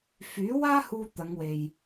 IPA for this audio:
f yː˨˥ w aː˥ h uː˧ t̪ ɐ˨˧ ŋ w e˨ j

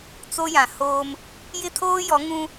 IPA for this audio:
t͡s o˦ j ã˨ h oː˦ m | j ɪ˦ tʰ oː˦ j ɔ˨˦ ŋ ũ˦

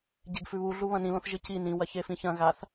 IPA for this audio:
ɟ e ɡ f ʉ β u ɮ u β ɐ̃ n ĩ l õ θ ʒ ɨ c i n ĩ w ɐ ç e f ĩ ç ɐ̃ ɣ a θ

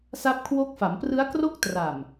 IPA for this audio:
s a˦˥ p̚ kʰ w o˦˥ k̚ f a˩˦ m p r ɯ˦˥ a̯ k r o˥˩ k̚ t r a˨˩ m

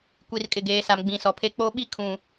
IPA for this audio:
kʷ i˨ r kʼ ɪ˨ ɡ eː˨ s a˨ m ɡ͡b ĩ˨ s ɔ˨ pʰ e˦ k͡p o˦ ɓ i˦ kʰ ũ˨

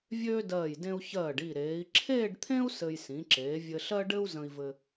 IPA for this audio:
vʲ øː˥ d ɜː˧˩ j d ẽ˧ u̯ ç ɜː˧˩ ɖ i˧˩ ɾ eː˩˧ i̯ ǁʰ eː˥˧ ɖ t̪ʰ ẽ˥ u̯ s ɘ˧ j s ĩ˩˧ ǁ eː˩˧ vʲ ɘ˧ ɬ ɜ˥ ɖ ɘ˥ u̯ z ə̃˧ i̯ v ɘ˧

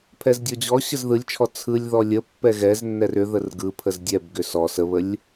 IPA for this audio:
pʰ ɛ z dʲ ɔ d͡ʑ ɔ ɕ ə z ð ɯ lʲ t͡ʃʰ ɔ t͡sʰ ɯ lʲ ð ɔ lʲ ə pː ɛ ɣ ɛ z nː ɛ r ʏ ð ə r ɡ ɯ pʰ ə z dʲ ɛ b ɡ ʏ s ɔ s ə β ə lʲ

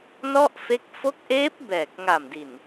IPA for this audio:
n ɔ˥˩ ʔ f e˦˥ k̚ f o˦˥ k̚ ʔ eː˦˥ p̚ b ɛː˨˩ k̚ ŋ a˨˩ m d i˨˩ n

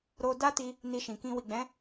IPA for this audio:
ɾ o˧ d a˦ t i˧ | n i˧ ʃ ĩ˨ k ĩ˧ w i˨ ɡ͡b ɛ̃˨˦

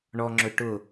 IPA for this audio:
ɳ ɔ ŋ͡ǁ ɵ ʈ ʊ

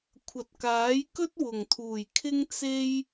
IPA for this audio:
kʷʰ ɐ˨ t̚ k aː˨˥ j k ɵ˥ t̚ w ʊ˨˩ ŋ t̪ʰ uː˨˩ j kʰ ɪ˥ ŋ t͡s e˥ j

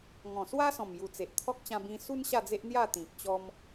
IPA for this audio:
ŋ ɔ̃˨˩ s w a˦ s ɔ̃˨˩ m j u˨˩ t͡s e˨ ʔ t̪ʰ ɔ˦ k̚ t͡ɕ ã˧ b ĩ˧ s u˦ n ɕ a˥˧ d͡z e˦ ʔ n̪ j a˥˧ t̪ ĩ˨ k̚ t͡ɕ ɔ˦ m

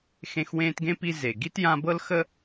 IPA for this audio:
x ẽ˦ x w ẽː˦ t ɡ ẽ˥ p i˦ z e˨ ɡ i˥ t j ã˦ b ɤ˥ l x ə˥

